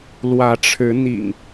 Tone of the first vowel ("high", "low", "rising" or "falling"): rising